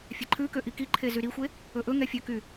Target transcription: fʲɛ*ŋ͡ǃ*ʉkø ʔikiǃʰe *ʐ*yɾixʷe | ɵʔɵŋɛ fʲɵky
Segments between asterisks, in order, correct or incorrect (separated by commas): incorrect, incorrect